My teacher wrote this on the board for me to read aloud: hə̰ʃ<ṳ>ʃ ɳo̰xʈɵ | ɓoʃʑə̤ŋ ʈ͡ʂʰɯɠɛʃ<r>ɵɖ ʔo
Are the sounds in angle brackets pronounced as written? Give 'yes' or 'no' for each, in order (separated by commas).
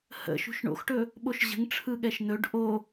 yes, no